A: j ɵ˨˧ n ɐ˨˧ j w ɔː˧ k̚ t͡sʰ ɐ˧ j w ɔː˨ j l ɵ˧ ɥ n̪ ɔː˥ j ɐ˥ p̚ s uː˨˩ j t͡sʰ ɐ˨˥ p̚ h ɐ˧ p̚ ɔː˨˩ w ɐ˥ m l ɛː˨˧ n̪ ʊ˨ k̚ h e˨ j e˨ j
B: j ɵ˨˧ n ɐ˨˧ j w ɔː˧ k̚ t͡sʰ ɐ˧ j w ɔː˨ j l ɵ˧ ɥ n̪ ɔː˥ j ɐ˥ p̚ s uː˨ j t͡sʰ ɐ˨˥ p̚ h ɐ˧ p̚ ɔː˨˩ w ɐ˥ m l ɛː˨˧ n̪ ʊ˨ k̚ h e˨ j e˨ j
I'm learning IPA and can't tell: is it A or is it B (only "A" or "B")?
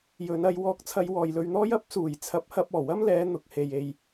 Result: A